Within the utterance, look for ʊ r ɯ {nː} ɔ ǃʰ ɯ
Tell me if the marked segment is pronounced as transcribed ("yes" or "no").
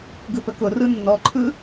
yes